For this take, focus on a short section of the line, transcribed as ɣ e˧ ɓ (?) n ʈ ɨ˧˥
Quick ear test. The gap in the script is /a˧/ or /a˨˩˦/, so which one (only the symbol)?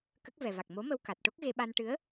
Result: a˧